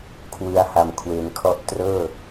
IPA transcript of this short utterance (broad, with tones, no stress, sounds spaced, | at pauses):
kʰ w ɯ˧ a̯ h a˨˩ m kʰ w e˩˦ n kʰ ɔ˦˥ ʔ t r ɤː˥˩